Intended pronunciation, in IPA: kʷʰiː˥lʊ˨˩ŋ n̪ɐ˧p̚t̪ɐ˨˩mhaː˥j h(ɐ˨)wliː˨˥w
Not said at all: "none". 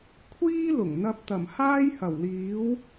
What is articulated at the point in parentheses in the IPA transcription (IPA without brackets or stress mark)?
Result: ɐ˨˩